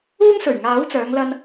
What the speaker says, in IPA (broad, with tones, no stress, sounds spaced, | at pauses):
uː˥ ŋ s ɵ˨˩ ɥ ŋ aː˨˥ w t͡s œː˨˧ ŋ l ɐ˧ n